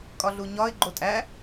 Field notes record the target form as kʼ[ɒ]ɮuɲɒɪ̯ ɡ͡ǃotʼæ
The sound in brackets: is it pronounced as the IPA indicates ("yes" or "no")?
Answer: yes